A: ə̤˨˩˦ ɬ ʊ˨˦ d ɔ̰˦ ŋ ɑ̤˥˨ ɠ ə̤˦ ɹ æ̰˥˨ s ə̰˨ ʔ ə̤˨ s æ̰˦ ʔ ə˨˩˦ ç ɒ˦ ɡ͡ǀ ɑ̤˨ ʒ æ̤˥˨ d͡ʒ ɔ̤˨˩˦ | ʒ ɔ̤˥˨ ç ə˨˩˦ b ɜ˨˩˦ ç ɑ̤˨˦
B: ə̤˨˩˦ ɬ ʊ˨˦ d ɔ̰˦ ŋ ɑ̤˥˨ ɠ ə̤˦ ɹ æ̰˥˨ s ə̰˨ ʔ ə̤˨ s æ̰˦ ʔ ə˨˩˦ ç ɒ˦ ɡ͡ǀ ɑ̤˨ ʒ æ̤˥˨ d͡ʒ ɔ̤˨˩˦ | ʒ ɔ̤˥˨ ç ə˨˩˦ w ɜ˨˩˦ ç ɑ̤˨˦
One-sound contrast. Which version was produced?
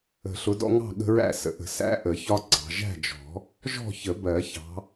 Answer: A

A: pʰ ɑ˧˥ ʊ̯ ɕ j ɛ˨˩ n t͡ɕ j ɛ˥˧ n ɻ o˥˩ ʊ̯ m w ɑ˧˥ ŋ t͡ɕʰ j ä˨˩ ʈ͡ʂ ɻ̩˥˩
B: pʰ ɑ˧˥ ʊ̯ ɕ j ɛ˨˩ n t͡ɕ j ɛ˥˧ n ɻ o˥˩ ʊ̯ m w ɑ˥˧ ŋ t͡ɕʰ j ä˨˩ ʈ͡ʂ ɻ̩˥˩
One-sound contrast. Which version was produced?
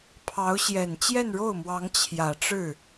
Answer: A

